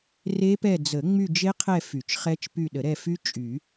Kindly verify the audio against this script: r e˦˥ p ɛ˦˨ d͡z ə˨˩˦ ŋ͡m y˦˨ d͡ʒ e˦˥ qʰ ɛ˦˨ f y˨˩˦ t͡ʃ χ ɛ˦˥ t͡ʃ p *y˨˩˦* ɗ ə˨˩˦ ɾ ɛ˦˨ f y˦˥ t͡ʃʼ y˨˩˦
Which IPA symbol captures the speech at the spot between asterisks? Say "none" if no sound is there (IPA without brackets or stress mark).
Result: y˦˨